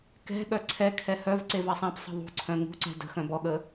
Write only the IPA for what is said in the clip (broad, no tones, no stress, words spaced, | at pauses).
kɛ̤ ɠœǀʰɛkʰɛ hœvǀe vasˤãpsˤə̤ ðˤṳǀʰœ̃ ŋṳǀɛ̤ də̤ xœ̃bɔɠə